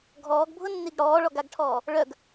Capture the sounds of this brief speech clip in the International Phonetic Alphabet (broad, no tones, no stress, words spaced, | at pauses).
ɡʱɔːɡbʱʊnːiɡ ɽɔːɭɔɡaɡʈʰɔː | ɭœɡ